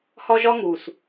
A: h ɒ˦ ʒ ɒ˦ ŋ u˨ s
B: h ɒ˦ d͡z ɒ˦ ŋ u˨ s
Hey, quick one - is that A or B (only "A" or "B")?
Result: A